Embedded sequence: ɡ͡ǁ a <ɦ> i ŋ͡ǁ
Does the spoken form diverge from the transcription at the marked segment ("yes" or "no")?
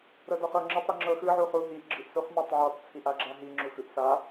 no